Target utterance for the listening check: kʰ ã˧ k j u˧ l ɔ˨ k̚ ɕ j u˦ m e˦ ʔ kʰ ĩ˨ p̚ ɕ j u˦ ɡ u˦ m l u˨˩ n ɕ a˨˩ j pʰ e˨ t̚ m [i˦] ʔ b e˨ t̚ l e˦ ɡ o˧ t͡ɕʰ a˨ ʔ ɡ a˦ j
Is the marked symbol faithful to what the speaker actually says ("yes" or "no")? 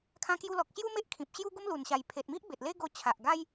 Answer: yes